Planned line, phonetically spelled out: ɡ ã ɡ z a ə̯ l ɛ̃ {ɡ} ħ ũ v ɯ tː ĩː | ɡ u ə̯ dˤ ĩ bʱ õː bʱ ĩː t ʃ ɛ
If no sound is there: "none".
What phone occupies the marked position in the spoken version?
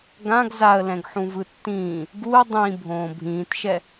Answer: ɡ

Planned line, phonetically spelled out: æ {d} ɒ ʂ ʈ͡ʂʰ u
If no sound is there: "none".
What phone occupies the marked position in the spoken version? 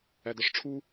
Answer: d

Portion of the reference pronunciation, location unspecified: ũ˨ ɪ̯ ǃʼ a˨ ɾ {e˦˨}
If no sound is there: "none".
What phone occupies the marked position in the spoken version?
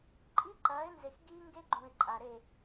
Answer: e˦˨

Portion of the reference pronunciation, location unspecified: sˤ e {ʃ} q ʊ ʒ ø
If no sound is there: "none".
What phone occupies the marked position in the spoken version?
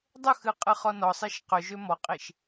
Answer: ʃ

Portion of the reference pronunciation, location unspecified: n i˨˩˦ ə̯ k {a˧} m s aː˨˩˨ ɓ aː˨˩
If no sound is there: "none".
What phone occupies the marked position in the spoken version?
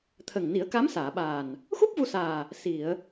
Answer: a˧˥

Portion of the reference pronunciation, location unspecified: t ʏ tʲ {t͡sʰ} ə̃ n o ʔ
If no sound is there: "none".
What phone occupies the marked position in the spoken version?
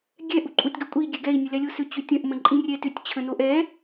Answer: t͡ɕʰ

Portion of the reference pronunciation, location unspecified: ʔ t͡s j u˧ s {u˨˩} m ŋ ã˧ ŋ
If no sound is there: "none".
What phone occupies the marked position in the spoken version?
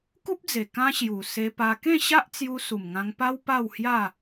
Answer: u˨˩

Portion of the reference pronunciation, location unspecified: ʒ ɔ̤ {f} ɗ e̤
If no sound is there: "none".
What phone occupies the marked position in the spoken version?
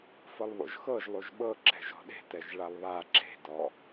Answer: none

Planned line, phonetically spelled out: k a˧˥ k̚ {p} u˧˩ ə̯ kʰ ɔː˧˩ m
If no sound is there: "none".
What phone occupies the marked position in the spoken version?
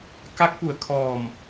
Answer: p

